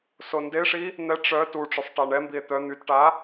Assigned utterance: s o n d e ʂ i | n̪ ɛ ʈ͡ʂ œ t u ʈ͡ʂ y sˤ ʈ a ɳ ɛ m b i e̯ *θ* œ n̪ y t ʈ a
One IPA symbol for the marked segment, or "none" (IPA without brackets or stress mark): t̪